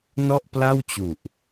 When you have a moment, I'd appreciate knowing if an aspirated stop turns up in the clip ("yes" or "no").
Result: no